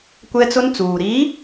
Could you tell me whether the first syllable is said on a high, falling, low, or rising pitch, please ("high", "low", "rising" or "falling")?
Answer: high